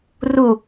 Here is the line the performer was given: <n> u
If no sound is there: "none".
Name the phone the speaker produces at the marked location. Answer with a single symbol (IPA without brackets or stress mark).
r